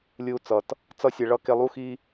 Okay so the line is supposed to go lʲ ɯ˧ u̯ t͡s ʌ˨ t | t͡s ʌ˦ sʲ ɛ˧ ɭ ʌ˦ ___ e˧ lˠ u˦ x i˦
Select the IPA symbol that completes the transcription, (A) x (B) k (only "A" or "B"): B